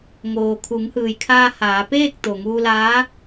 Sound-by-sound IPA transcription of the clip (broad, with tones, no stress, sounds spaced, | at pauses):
ŋ oː˩ kʰ u˩˧ ŋ h ɯː˩ j kʰ aː˧ h aː˩˧ p eː˥˨ k̚ t̪ o˩ ŋ uː˧ l aː˧˥